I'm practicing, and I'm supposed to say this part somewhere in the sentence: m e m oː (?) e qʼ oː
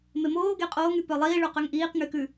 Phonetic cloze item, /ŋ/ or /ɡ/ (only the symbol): ɡ